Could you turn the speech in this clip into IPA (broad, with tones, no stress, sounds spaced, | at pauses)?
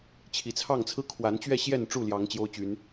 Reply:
t͡ɕʰ i˨˩ t͡sʰ ɑ˥˨ ŋ t͡sʰ ɹ̩˦ kʰ w a˨˦ n t͡ɕ ɥ ɛ˥˨ ɕ j ɛ˥˨ n ʈ͡ʂ u˥˨ l j ɑ˨˦ ŋ t͡ɕ j o˦ ʊ̯ t͡ɕ y˨˦ n